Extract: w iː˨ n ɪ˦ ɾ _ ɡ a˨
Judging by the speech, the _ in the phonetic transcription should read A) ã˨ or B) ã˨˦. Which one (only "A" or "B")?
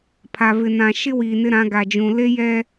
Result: B